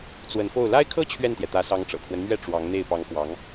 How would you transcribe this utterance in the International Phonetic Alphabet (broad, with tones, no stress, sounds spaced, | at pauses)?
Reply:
t͡s w ə˧˥ n f o˥˩ ʊ̯ l a˥ ɪ̯ kʰ ɤ˥ t͡ɕʰ ɥ ɛ˥˩ n t̪ j ɛ˩ t̪ ä˧˥ s ɑ˧˥ ŋ ʈ͡ʂ ɤ̰˨˩ kʰ w ə˦ n m ɥ ɛ˥˩ ʈ͡ʂ w ɑ˧˥ ŋ n̪ e˥˩ ɪ̯ p ɑ˧˥ ŋ f w ɑ˧˥ ŋ